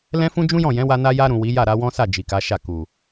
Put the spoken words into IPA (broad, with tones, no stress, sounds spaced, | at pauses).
l ɛ̃˦ f ũ˦ d͡ʒ ũ˦ j ɔ̃˦˨ j ɛ̃˨˦ w a˧ n a˧ j a˧ ɾ ũ˨ w i˨˦ j a˦˨ ɾ a˧ w ɔ̃˦ s a˦˨ d͡ʒ i˨ k a˨˦ ʃ a˦˨ k u˨